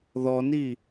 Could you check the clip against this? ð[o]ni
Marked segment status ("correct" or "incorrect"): incorrect